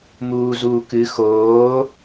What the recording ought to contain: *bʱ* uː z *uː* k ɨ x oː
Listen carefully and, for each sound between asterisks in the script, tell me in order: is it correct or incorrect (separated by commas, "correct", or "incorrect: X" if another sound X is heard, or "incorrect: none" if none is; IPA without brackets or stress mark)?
incorrect: m, correct